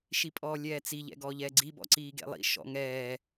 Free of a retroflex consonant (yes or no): yes